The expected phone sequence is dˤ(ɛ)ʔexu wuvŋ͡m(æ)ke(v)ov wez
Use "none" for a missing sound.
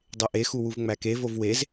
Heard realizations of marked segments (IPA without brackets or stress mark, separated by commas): e, æ, v